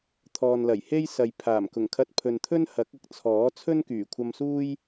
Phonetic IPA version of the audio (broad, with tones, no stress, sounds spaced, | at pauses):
t̪ʰ ɔː˨ n l ɐ˨˩ j h e˥ j s ɐ˨ j pʰ aː˨˩ m k ʊ˨˩ ŋ kʰ ɐ˧ t̚ pʰ ɵ˨ n t̪ʰ ɵ˥ n h ɐ˨˥ k̚ ɐ˧ k̚ t͡sʰ ɔː˨˥ t͡sʰ ɵ˥ n k yː˨˩ kʷʰ ɐ˧ m s uː˥ j